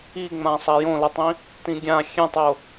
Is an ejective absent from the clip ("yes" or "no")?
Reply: yes